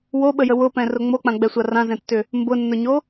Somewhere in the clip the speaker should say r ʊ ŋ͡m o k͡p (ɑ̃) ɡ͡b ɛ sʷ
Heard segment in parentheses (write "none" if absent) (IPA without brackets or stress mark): ã